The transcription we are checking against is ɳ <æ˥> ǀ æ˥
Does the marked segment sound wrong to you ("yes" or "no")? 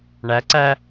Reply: yes